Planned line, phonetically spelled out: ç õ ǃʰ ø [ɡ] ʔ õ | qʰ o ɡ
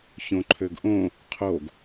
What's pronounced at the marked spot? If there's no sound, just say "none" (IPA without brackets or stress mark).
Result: ɡ